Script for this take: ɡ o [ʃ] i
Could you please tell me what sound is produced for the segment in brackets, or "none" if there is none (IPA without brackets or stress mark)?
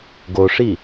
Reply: ʂ